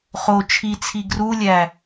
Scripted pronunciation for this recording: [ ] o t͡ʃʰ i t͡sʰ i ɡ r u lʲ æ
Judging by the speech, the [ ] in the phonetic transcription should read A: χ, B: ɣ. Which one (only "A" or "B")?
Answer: A